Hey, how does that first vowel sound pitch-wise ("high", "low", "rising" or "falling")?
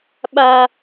high